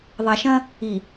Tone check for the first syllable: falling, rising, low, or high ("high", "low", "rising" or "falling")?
low